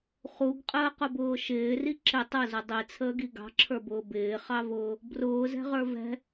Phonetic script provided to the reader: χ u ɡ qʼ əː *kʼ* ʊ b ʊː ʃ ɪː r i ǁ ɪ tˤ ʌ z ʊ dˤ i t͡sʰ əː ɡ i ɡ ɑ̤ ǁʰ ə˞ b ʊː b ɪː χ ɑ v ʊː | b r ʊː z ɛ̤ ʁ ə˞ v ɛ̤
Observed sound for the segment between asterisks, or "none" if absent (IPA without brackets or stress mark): q